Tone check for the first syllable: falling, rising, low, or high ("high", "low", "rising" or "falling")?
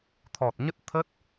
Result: low